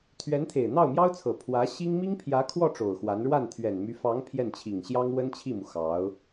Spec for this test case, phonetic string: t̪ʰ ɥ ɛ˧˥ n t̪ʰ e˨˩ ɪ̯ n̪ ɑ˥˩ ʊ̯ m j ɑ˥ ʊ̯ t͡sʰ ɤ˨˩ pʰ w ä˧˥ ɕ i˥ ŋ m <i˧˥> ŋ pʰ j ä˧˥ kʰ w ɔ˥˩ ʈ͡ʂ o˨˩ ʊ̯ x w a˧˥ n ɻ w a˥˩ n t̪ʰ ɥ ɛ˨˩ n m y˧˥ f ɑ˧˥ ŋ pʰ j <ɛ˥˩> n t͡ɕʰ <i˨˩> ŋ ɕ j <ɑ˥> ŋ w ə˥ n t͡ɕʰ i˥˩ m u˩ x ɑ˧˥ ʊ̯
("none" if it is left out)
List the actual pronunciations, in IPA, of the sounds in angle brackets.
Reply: i˥, ɛ˥˩, i˨˩, ɑ˥

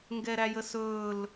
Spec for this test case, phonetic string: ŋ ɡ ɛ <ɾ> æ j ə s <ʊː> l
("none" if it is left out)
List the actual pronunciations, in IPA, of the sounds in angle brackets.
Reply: ɾ, ɵː

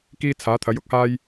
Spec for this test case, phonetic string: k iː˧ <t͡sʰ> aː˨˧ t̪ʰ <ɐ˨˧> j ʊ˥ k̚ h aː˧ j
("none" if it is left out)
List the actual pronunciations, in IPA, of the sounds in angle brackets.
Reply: t͡sʰ, ɐ˨˧

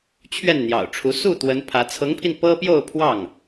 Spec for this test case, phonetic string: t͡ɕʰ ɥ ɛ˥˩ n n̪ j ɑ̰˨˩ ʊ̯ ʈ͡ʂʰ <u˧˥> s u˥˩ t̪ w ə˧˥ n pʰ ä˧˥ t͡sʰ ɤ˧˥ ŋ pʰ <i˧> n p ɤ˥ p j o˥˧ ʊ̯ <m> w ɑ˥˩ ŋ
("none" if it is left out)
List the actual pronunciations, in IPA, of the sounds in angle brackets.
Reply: u˧˥, i˧, pʰ

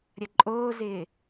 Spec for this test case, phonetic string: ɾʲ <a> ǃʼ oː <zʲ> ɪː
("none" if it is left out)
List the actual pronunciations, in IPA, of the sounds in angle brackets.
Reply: ɐ, z

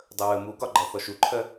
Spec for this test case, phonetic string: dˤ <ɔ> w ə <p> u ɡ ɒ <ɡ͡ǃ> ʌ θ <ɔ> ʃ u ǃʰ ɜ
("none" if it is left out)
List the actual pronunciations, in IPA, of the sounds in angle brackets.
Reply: ə, m, ɡ͡ǃ, ɔ

